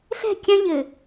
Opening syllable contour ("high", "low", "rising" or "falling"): falling